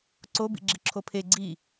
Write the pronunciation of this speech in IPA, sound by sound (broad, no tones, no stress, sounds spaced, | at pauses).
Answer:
ǀ o b ḭ ɡ͡ǁ i ǁʰ o pʰ e ɡ͡ǀ i